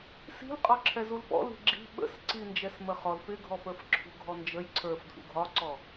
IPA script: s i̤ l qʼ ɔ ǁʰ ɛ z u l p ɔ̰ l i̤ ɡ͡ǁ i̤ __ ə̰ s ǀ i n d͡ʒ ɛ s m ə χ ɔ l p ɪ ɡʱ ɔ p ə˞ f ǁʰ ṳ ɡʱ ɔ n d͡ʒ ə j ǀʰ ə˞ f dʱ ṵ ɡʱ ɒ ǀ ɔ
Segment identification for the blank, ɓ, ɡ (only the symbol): ɓ